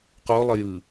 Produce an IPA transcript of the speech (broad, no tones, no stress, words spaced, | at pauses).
qolˠə jɯ